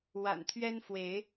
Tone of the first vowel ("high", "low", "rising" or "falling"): low